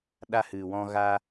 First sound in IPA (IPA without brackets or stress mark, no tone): ɗ